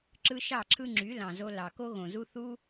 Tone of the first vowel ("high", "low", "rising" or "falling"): high